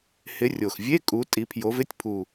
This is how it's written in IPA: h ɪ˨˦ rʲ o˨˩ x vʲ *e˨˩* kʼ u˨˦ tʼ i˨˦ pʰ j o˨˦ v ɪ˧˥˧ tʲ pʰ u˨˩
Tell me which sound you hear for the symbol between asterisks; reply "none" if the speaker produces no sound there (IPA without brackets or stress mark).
e˧˥˧